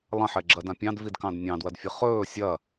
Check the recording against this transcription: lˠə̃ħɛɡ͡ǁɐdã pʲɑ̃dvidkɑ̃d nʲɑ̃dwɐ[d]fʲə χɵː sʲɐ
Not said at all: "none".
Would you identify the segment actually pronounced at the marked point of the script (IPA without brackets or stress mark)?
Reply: d